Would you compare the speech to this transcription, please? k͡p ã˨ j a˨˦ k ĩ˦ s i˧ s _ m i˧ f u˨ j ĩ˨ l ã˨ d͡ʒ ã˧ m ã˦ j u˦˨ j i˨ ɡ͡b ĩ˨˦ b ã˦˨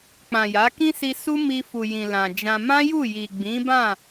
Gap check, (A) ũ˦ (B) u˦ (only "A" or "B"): B